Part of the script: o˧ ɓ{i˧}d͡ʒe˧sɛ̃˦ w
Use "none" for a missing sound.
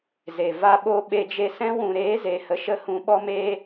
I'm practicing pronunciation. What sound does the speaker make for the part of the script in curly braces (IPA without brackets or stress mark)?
e˧